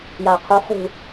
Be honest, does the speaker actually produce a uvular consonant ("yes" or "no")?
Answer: yes